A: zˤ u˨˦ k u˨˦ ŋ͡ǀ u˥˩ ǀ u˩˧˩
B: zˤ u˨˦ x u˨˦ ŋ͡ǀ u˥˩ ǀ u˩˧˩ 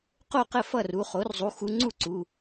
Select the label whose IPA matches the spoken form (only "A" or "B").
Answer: B